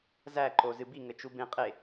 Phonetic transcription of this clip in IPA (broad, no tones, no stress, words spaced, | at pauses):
zæǃo zɨbiŋɘ t͡ʃubẽ qʼe